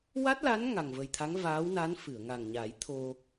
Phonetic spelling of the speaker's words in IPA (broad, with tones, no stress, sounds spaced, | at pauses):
w a˦˥ t̚ l a˧˥ n ŋ a˨˩ ŋ v ə˨˩ j t̪ʰ a˧˥ ŋ v aː˧˥ w n a˧˥ n f ɨ˨˩˨ ə̯ ŋ a˨˩ ŋ ɲ a˨˩˦ j t̪ʰ o˧